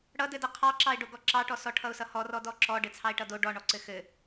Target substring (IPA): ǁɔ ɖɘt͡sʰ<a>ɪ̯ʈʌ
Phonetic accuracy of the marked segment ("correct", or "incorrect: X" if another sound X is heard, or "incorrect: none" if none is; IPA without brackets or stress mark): incorrect: ɑ